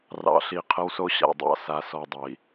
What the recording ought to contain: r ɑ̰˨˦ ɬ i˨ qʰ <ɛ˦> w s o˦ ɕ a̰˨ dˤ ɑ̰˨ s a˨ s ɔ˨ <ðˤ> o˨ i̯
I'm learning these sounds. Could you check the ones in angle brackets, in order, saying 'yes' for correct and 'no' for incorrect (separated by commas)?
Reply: no, no